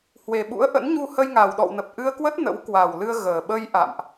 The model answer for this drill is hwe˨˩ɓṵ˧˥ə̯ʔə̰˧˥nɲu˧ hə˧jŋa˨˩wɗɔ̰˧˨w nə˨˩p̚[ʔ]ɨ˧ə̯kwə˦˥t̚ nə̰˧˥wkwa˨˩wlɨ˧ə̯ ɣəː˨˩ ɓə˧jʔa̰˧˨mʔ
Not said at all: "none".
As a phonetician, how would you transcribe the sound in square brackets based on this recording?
ʔ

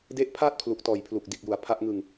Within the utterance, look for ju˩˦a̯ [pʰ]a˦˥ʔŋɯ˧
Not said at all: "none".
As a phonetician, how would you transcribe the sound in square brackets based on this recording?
pʰ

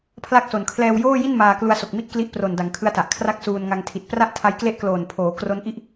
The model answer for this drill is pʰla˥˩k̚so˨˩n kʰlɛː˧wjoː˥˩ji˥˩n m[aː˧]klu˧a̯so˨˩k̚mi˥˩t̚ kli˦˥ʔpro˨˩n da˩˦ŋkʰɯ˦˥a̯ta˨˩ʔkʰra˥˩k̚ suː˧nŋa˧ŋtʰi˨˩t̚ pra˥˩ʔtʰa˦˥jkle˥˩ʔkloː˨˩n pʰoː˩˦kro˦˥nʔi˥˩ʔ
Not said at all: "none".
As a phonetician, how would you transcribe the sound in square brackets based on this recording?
aː˧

